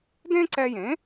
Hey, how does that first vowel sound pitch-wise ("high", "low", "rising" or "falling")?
high